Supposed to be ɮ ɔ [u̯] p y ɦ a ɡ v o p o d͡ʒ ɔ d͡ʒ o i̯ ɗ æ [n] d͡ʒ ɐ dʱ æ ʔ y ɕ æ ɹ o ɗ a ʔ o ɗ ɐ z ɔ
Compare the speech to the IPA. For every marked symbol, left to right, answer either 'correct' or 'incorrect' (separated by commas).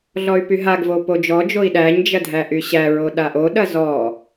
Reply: incorrect, incorrect